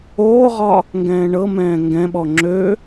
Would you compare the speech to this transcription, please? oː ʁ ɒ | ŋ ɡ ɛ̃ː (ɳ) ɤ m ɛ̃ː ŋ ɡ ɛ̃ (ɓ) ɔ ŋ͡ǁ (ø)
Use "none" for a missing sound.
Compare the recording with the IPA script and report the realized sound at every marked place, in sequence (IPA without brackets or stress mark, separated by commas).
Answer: ɳ, ɓ, ø